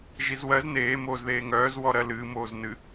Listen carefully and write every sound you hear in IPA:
ʒizwɜz neː moːzðeːŋœːz wɔɾɜlɨː moːznɨ

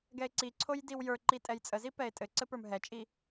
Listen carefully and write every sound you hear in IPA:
ɡɛe̯ǀiǀʰoj diwjə˞ǃi tʼɛjt͡sʼəzi pɛe̯tʼɘǀɘ pə˞mɦɛt͡ʃʼi

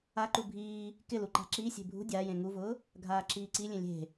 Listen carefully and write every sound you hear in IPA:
aǃu bʱiː | kɪ luǃa̤ǁiːsʲe̤ bʱṳ dʲaːjẽ ŋuvʊː | ɡʱaːǁiːǀilʲẽ lʲe̤

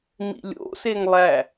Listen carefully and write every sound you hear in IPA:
mḭlʲo̰seŋ lˠæ

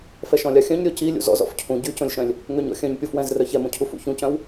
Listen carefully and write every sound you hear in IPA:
fɛʃɔ̃lʲaxʲœ̃ɲ ɾʲɔci lʲṵzɔ̰z ɔ̰fcʰũ ɟycõlʲʃœ̃lʲ | ŋøɲɔ̰xʲœ̃ɲ pʲofwɛ̃z rœçɛmõcʰu fṵçũcœ̃w

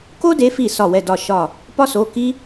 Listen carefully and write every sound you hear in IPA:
ko˥de˨˦fi˧˩ sɒ˧˩wɛ˧˩dɒ˧˩ ʃɒ˧˩ | pɒ˥so˩˧˩ki˥

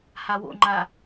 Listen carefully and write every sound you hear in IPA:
hawo̰ŋ͡ǃa

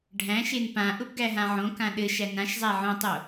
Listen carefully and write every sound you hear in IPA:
ɖʱæ̃ ʃenpãʔʊb ɡæɦãʕõkã ɗɘ ʃænãʃzˤæ ʕõtˤo

